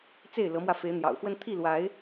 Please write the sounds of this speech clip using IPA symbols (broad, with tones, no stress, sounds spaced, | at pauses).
t͡s e˥˨ ɪ̯ l ɤ˨˦ m w ä˧ f e˨˦ ɪ̯ n̪ j ɑ̰˨˩ ʊ̯ x w ə˦ n t̪ʰ i˥˨ l w a˨˦ ɪ̯